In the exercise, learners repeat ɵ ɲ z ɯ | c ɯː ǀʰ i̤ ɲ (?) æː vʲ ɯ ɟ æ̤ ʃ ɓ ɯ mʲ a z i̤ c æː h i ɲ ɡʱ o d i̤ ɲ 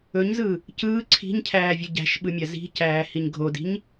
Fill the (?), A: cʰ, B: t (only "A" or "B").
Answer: A